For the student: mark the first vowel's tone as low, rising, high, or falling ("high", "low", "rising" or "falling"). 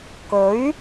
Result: rising